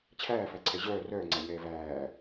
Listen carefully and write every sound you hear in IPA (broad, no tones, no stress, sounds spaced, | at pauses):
t͡ɕʰ æː f æ ǀʰ ɛ ʑ œː r œː ŋ͡ǀ æ ɲ ɛː v æː